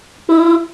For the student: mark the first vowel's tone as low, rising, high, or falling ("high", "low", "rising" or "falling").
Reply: high